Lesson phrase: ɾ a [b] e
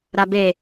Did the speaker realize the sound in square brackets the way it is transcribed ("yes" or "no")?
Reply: yes